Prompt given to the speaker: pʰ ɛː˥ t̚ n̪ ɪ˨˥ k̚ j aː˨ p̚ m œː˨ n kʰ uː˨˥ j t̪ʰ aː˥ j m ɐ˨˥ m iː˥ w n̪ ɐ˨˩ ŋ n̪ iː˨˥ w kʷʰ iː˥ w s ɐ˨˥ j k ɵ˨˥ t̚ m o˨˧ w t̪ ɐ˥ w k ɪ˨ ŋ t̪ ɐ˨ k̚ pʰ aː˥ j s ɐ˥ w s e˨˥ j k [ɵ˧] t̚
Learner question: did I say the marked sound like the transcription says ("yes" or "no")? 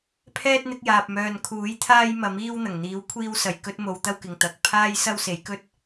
no